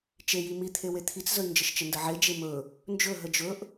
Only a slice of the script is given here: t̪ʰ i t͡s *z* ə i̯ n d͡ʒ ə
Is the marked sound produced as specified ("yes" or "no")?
yes